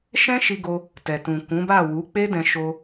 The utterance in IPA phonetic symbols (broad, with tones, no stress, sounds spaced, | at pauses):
ʃ ɛ̃˦ ʃ i˧ ɡ o˧ | t ɛ˨ t ũ˨ k ũ˨˦ b a˦˨ w u˨˦ k͡p e˦ d ɛ̃˧ ʃ o˧